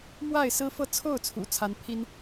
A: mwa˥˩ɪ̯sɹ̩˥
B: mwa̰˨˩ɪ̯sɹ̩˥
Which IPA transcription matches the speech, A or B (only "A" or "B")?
A